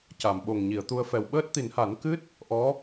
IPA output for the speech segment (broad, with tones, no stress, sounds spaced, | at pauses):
c a˨˩˨ m ɓ o˨˩ ŋ ɲ i˨˩˨ ə̯ t̪ u˧ ə̯ f ɛ˨˩ w ɓ əː˦˥ t̚ t̪ i˨˩˦ n h a˨˩˦ n k ɨ˦˥ t̚ | ʔ ɔ˧˥